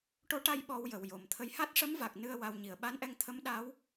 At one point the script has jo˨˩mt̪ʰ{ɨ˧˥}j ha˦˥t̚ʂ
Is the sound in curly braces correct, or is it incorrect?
incorrect